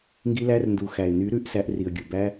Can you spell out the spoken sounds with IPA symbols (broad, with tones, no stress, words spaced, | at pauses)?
ŋɡi˧læ˧rndu˨ xæ˨ɪ̯ny˨˦ ɾʉ˨˦ʔsæ˧ʔri˨ə̯ ɡʲu˨bæ˦